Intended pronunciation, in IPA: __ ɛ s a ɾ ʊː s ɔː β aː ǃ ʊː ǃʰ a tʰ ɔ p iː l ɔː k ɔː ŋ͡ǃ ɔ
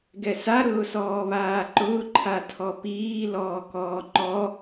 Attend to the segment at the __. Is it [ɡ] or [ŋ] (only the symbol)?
ɡ